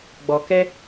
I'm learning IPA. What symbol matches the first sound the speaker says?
ɡ͡b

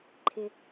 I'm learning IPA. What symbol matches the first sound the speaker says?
ǃʰ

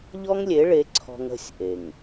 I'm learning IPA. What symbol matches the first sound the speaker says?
ʎ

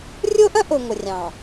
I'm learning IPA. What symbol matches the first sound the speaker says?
rʲ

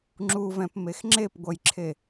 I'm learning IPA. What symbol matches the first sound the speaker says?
ŋ͡ǁ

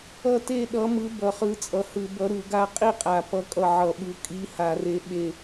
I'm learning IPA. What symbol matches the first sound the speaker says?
ʌ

